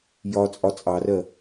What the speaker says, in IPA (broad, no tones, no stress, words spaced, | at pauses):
jɒt͡sʼɒ t͡sʼɑrɜ